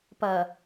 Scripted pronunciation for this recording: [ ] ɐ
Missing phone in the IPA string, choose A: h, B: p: B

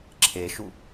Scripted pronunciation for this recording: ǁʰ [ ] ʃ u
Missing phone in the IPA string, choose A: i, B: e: B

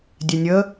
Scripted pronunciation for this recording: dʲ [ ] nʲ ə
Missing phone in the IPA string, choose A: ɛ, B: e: A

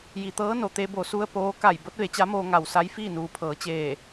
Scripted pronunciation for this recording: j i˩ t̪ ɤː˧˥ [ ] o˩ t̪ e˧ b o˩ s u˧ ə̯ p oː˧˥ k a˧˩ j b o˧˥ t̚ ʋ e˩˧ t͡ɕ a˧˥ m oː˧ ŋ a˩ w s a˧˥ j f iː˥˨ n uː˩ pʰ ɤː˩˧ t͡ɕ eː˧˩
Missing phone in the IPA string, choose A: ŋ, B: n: B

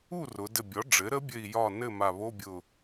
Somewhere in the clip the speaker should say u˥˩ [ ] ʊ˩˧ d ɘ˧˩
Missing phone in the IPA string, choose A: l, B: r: B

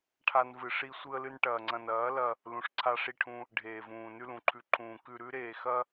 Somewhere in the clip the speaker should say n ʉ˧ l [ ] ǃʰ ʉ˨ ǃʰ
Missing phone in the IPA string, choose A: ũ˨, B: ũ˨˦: A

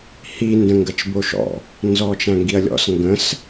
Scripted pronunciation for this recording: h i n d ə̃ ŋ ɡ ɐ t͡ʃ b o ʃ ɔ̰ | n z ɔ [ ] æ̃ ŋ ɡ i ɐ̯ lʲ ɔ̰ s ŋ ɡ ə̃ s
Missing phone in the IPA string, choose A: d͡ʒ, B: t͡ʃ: B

